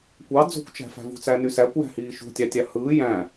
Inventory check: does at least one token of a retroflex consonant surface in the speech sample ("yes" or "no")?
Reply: no